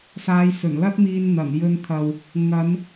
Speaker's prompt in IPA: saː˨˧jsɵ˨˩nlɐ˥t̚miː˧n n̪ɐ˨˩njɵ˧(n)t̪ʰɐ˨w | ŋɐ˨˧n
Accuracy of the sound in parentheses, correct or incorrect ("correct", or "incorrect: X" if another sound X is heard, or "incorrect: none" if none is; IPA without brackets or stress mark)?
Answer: correct